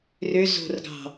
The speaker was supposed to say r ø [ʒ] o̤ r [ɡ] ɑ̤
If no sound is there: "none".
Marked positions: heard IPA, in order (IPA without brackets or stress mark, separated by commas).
z, ɡ